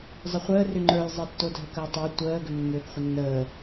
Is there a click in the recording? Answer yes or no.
yes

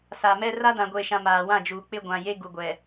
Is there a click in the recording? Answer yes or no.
no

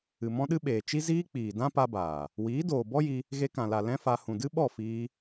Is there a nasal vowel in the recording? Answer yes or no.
yes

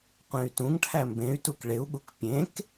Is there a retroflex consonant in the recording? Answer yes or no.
yes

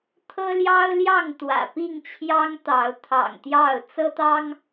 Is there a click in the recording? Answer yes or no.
no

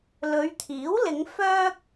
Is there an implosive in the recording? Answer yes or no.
no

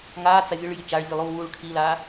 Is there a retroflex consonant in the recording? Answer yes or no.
yes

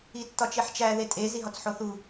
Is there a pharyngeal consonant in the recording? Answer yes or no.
yes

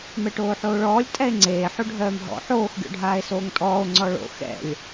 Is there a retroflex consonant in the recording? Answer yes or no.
yes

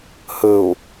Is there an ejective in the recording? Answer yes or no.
no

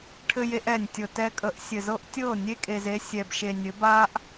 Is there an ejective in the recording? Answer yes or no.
yes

